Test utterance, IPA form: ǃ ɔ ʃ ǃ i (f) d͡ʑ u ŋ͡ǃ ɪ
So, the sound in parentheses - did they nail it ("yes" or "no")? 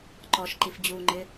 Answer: yes